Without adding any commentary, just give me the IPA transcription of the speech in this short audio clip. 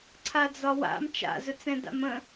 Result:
ǀʰ a d͡z ɒ w a̰ m t͡ʃ a̰ z ɵ t͡s ɛ̃ d a̰ m ə̃

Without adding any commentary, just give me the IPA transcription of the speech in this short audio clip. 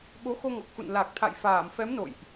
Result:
ɓ o˨˦ x o˧ ŋ ɔ˨˩ k̚ x ṵ˧˨ n l aː˨˩ k̚ t̪ʰ a̰˧˨ j f aː˧˩ m f ɛ˨˦ m n o̰˧˨ j ʔ

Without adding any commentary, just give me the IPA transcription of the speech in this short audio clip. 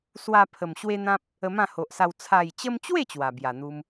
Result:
s w a˧ pʰ ə˨˩ m ɕ w e˦ n̪ ã˦ p̚ | ə˧ m ã˥˧ h o˨ ʔ s a˧ w t͡sʰ a˨˩ j t͡ɕ ə˧ m t͡ɕ w e˥˧ t͡ɕ w a˨˩ b j a˨˩ n̪ u˧ m

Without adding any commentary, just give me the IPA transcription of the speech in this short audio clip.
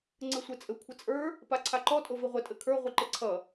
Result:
ŋ͡ǀ ɘ sʷ e t͡sʼ ɘ kʷʰ ɪ t͡sʼ ə˞ | p a ǀʰ a ǃ ɔ tʼ o v i ʁʷ ɘ tʼ ɘ kʰ ə˞ ʁʷ i ǃ ɪ ǀʰ ʌ

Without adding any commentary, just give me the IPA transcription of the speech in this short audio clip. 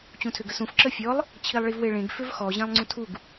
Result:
t͡ɕ ũ tʰ ʏ ɡ ə s ũ f ǁ ə fʲ ɔ lˠ | t͡ɕʰ i lˠ ɭ i v w e ɭ ẽ ɡ f ʏ v x ɔ ʑ ẽ lˠ ŋ͡ǀ ũ tʰ u ɡ

